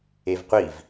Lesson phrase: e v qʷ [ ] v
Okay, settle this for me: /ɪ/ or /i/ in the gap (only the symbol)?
i